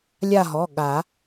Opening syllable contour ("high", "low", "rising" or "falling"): falling